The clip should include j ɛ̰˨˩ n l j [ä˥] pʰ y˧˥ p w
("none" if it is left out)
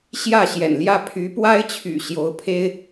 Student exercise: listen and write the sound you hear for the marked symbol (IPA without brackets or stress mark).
ä˥˩